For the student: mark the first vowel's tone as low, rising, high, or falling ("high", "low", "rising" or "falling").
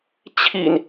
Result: low